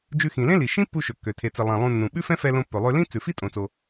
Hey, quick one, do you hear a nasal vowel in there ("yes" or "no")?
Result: yes